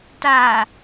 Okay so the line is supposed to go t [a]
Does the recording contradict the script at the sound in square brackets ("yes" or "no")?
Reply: yes